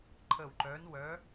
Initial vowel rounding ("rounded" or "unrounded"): unrounded